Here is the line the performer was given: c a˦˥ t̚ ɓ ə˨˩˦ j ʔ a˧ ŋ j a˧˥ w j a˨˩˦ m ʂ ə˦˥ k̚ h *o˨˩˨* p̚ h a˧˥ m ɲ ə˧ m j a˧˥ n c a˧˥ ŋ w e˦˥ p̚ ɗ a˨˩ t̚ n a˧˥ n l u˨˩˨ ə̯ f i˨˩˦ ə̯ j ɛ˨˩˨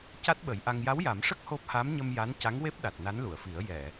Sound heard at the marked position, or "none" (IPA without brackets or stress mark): o˦˥